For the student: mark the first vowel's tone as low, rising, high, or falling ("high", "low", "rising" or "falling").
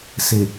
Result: low